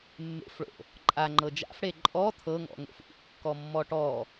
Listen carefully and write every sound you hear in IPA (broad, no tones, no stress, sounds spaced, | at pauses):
mː ḛ f ɭ o̰ | ǃʼ a ŋ͡ǃ ɤ d͡ʒ a̰ f ɽ e ǃʼ ɔ t̪ʰ ɤ ŋ ɔ̰ ŋ o̰ f ʔ ṵ kː ɔ mː ɔ ʈ ɔ